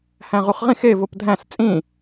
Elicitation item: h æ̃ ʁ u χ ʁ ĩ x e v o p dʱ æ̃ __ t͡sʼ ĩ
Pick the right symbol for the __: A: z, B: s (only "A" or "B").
B